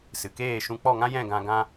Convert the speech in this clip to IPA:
sɨ˨keː˦˨ʃũ˧ k͡pɔ˦˨ŋã˦jɛ̃˦˨ ɡã˧ɡã˦

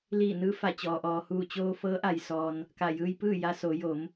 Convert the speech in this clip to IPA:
liː˧˩nɯː˧fa˧˩ t͡ɕɔː˩ʔɔː˩ huː˧˩t͡ɕoː˧fɤː˧˥ ʔa˧j sɔː˧n | ka˧˩jɯː˧jpɯː˥˨ ja˧soː˩˧jo˩˧m

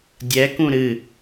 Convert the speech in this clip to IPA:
dʲɛkũ ɾɨ

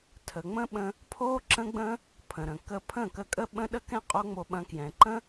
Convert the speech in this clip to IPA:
tʰə˨ŋ͡mə̃˦ɓə̃˧ | pʰo˦ ǁə̃˦ɡ͡bə̃˦ | pʰə̃˨ɾə̃˨ kə˧pʰə̃˦˨kə˧ kʼə˧ɓə̃˧ɗə˧kɛ̃˧ qʼo˦ŋ͡mo˧ɓɐ̃˧ kjɛ̃˨ǃə̃˦

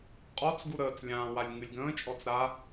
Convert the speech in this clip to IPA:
qʼɔt͡s ɡuɾəːt͡s lʲãː walʲŋɨlʲɡə̃ː t͡ʃʼɔt͡sɾa

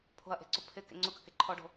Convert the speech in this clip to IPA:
pʰo̤ɐ̯ʔe̤ǀʊ pʰɪ kḛŋ͡ǀʊkɐke ǃʰɔɖo̤

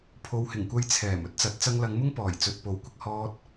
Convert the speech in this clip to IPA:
pʰo˨whɪ˨˩ŋkʷɐ˨˧j t͡sʰɛː˨˩m ɵ˥t̚t͡sɐ˨˥t̚ t͡sɐ˧ŋlɐ˨˧ŋmʊ˥ŋ pɔː˨˩jt͡sɵ˨t̚ po˨˥wkʷɪ˨k̚ hɔː˧t̚

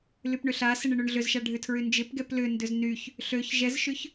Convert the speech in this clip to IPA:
lypɳʏɬasɪɳ ɪɳøɳɮʏzʃa ɖʱʏtʰɹynd͡ʒɪpɡɛp lʏndʏz nyç | ɬøç ʒɛzʃʏç

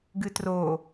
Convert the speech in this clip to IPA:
ɡɨtro

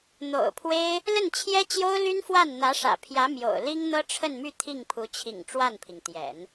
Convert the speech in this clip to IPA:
n̪o̰˨˩ʊ̯pʰwe˥ɪ̯ | lə˥˩nt͡ɕʰjɛ˥t͡ɕjo˥ʊ̯ly˥n fwa˥˩nn̪ä˧˥ʂä̰˨˩pʰjä˧˥ mjo̰˨˩ʊ̯li˥ŋn̪ɤ˥ ʈ͡ʂʰə˥˧nmy˥˧ t̪ʰi˥˩ŋpʰu˧˥t͡ɕʰḭ˨˩ŋ ʈ͡ʂwa˥˩npʰi˩ŋt̪jɛ̰˨˩˦n

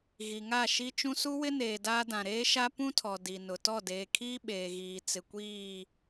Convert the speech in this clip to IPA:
ɣi˨ŋa˦˨ʃi˦t͡ʃũ˦ su˦wɪ˦neː˨ daː˦ dã˨ɾeː˦ʃa˦ pũ˦tʰɔ˨ di˨nʊ˨ tɔ˦˨deː˨kʰiː˦ ɓeː˨ɣiː˨ t͡sɪ˨kʷiː˦˨

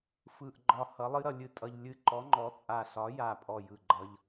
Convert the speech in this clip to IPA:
fɯ˧˩ʔɡ͡ǃɒ˧˩ hʌ˨˥lˠɨ˥ɾʌ˧ lʲɨ˨˥tʼʌ˧ʎ lʲɨ˧ǃɔ˨˥ŋ͡ǃɔ˨˥t͡sʼa˧˩ ɬɒ˨˥ja˧˩pʼɔ˧˩ jɯ˧˩ɡ͡ǃʌ˧ʎ

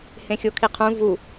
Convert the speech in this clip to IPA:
hẽxʲokʰiqʰũ vu

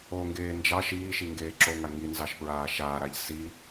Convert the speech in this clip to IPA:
oŋɡeː nd͡ʒɑ ʃiːʃiŋɡeː ǁoŋa ŋinzɑʃpɹaː ʃaːɾaʎ si

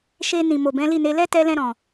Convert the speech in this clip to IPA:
ʃe˧ nĩ˨ mo˨bɛ̃˨˦li˦˨ne˨˦ lɛ˦tɛ˧lɛ̃˧ɾɔ̃˨

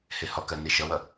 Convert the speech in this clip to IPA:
hehɔkɜ niʃʌwʌ

